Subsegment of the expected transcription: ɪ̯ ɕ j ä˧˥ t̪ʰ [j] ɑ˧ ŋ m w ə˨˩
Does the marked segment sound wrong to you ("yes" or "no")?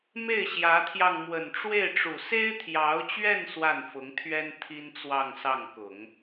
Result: no